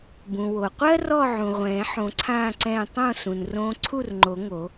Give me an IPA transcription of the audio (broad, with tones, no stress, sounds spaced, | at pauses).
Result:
b ũ˩ w o˩ qʷ ɜ˧ r ɔ˥˨ ʕ ũ˩ ʁʷ ɛ̃ː˨˩˦ ħ õ˨˩˦ ǀʰ ãː˥˨ ǀ ɛ̃ː˥˨ tˤ õ˥˨ s ũ˩ n r õː˧ ǀʰ u˥˨ r ŋ͡ǃ o˨˩˦ ŋ o˨˩˦